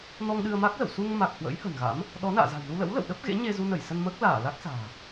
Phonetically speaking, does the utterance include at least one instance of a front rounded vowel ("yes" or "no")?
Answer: no